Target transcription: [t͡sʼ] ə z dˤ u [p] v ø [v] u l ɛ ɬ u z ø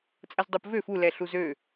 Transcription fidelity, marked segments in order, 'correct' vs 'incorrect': correct, correct, incorrect: f

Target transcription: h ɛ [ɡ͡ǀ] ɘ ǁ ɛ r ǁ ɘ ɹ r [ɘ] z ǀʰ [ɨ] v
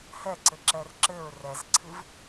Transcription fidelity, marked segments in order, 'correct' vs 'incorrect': incorrect: ǀ, incorrect: ɛ, correct

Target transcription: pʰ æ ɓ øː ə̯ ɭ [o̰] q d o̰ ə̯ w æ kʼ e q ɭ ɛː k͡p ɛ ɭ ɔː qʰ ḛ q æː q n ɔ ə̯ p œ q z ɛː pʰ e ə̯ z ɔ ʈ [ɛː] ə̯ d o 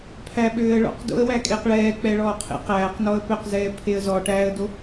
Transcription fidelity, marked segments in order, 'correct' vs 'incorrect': incorrect: ɔ̰, incorrect: æː

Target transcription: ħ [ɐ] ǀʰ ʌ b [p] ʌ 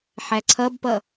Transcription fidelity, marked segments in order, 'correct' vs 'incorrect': incorrect: æ, correct

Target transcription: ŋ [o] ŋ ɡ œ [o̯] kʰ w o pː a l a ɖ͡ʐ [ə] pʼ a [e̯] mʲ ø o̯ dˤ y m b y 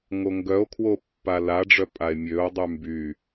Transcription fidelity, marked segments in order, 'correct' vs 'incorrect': correct, correct, incorrect: œ, correct

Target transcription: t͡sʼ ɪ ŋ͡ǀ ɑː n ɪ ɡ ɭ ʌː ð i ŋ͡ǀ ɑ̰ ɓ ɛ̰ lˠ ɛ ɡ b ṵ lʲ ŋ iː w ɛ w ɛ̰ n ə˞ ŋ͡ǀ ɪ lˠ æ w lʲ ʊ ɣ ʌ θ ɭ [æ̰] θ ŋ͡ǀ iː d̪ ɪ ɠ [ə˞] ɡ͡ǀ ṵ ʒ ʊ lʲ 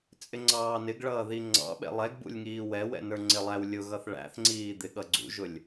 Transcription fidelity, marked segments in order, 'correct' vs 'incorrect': correct, incorrect: ʌ

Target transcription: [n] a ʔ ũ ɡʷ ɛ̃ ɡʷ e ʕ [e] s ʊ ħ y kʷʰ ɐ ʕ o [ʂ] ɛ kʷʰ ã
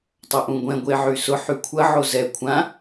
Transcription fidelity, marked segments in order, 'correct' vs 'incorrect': incorrect: tˤ, incorrect: y, incorrect: z

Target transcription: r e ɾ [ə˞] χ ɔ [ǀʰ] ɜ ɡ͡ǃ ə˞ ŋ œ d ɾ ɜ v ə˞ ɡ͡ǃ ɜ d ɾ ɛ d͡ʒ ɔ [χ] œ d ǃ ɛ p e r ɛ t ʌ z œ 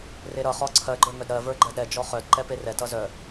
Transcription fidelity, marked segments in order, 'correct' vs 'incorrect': incorrect: ʌ, correct, correct

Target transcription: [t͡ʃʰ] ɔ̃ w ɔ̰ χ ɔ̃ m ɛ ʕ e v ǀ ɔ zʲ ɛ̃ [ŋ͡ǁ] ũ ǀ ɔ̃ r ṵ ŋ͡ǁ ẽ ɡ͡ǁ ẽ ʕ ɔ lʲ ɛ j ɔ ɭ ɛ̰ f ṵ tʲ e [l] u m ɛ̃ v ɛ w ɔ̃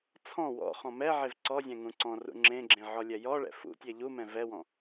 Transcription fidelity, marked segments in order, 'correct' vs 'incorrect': incorrect: t͡sʰ, incorrect: ŋ, incorrect: ʎ

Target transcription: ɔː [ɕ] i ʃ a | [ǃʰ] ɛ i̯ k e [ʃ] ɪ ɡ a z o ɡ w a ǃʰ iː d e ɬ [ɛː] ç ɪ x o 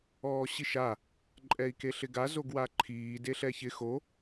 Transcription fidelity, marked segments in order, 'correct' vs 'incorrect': correct, incorrect: ǃʼ, incorrect: ɬ, incorrect: ɛ

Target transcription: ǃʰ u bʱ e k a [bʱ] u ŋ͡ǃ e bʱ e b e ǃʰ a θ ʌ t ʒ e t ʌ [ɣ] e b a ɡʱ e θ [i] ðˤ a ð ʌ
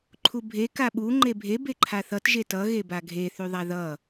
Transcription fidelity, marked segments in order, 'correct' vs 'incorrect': incorrect: ɓ, correct, incorrect: y

